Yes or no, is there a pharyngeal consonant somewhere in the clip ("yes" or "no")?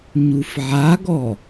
yes